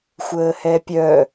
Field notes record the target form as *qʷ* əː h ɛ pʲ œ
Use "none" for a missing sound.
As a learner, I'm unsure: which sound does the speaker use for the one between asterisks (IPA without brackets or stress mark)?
xʷ